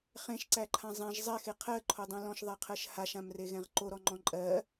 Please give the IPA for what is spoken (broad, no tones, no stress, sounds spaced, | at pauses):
χ ẽ ʃ ǀ æ ǃʰ ã zˤ ẽ ʒ zˤ ɛ x e qʰ ɜ ǃʰ o dˤ ɛ̃ l ɔ̃ ʃ ðˤ ɛ qʰ ɜ ʃ h a ʃ ã m r e ɣ ɛ̃ ʁ ǃ o ɾ ɔ ŋ͡ǃ ɔ̃ ǃʼ ɜ